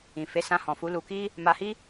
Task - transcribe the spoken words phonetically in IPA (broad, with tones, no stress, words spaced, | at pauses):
ĩ˨ fe˨˦sã˧hɔ̃˨fu˨˦ lu˧ki˦ | ma˧hi˦